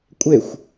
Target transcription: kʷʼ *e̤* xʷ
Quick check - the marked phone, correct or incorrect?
incorrect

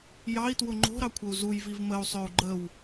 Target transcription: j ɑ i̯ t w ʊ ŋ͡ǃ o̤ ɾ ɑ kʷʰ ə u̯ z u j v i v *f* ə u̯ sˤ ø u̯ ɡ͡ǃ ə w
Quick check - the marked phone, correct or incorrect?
incorrect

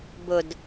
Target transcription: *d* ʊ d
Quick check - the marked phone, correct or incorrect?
incorrect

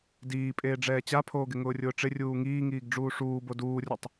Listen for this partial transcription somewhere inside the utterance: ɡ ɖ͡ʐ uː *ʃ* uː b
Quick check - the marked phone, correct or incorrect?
incorrect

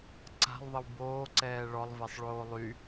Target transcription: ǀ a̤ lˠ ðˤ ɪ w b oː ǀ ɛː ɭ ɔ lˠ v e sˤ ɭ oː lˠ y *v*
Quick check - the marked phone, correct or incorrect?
incorrect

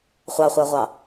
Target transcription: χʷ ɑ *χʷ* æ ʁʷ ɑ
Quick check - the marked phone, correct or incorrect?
correct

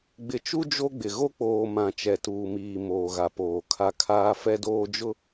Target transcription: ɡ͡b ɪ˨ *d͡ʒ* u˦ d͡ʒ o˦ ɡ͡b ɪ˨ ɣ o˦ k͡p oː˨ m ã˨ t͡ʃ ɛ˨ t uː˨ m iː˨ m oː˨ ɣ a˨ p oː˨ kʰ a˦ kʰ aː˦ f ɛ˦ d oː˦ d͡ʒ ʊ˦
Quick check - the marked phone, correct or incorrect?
incorrect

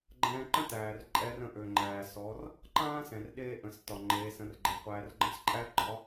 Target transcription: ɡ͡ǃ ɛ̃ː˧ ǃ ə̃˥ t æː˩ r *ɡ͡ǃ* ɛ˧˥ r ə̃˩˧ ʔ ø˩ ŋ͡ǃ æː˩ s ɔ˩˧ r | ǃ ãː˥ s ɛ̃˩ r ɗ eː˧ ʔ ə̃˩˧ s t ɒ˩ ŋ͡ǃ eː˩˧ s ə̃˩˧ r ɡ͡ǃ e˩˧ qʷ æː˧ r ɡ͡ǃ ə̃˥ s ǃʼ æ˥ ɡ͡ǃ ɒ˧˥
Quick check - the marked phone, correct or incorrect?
incorrect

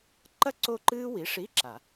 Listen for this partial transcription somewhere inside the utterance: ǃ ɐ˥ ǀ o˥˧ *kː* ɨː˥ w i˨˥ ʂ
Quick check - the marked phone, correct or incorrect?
incorrect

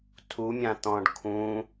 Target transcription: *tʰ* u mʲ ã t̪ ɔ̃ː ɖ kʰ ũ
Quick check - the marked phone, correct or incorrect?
correct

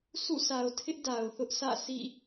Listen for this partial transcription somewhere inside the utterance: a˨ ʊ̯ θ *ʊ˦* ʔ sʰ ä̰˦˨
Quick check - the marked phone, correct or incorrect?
correct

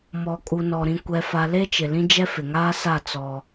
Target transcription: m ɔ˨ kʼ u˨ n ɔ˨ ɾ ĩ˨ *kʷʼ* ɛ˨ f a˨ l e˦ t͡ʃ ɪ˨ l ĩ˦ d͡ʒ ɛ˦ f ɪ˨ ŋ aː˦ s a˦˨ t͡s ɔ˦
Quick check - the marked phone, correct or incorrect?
incorrect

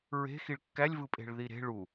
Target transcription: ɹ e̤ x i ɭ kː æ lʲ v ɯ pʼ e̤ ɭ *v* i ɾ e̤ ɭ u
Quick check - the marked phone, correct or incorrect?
incorrect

